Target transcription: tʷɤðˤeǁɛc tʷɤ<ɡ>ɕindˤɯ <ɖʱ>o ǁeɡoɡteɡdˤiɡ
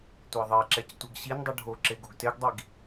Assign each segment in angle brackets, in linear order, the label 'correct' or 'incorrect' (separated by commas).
correct, correct